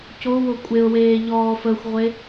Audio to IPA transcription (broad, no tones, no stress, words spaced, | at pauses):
cowo kʷʼeʊ̯weː ʎɔːfəxʷʁʷe